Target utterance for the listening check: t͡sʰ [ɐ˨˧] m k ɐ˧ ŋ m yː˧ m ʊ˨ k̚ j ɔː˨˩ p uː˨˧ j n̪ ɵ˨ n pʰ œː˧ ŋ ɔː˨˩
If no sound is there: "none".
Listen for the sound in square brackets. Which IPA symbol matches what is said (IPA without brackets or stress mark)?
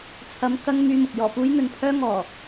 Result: ɐ˨˧